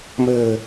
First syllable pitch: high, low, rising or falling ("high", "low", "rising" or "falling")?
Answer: low